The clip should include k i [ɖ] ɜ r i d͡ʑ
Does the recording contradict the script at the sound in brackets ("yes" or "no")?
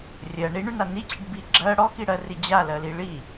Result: yes